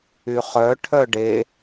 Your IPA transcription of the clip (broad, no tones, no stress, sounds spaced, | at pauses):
y χ œ ʈʰ œ ɖ e